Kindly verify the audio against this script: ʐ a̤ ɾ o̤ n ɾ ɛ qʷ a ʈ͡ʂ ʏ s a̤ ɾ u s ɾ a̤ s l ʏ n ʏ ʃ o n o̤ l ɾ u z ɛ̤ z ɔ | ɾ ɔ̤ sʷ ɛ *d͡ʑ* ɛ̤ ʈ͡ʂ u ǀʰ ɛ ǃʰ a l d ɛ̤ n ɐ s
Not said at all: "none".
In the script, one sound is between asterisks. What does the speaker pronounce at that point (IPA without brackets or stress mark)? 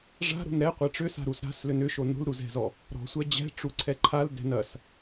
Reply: d͡ʑ